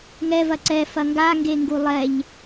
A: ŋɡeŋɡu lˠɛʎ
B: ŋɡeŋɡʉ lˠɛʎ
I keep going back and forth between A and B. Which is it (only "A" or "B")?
A